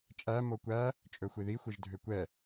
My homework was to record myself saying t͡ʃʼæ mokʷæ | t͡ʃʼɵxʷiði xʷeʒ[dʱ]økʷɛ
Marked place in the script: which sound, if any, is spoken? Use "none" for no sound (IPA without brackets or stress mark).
dʱ